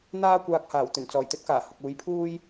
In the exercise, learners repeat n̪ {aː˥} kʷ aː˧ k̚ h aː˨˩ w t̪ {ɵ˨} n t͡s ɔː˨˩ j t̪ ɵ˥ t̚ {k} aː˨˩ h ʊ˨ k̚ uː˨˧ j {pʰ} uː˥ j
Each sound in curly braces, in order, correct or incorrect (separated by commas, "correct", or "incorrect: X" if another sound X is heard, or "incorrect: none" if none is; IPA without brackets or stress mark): correct, incorrect: ɵ˨˩, correct, correct